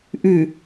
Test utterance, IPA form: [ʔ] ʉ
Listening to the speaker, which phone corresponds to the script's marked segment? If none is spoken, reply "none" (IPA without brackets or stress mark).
ʔ